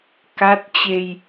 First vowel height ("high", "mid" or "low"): low